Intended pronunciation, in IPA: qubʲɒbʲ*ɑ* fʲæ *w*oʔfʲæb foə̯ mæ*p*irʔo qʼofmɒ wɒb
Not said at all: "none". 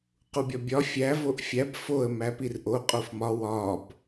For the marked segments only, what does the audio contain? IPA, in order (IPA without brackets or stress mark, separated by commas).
ɒ, v, p